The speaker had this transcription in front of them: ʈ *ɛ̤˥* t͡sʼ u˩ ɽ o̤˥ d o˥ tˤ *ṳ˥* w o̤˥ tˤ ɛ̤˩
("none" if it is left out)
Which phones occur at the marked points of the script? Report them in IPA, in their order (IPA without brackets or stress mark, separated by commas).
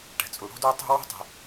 ɛ̤˩, ṳ˥